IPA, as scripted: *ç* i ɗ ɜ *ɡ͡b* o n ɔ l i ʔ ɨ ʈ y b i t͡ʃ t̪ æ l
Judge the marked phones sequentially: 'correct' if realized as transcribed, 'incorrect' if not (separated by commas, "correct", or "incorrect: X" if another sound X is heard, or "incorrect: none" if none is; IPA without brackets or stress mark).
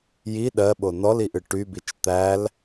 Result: incorrect: j, incorrect: ɓ